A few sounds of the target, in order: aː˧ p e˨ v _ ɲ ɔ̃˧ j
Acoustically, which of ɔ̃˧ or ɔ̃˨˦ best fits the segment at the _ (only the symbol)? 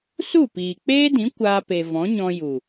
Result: ɔ̃˨˦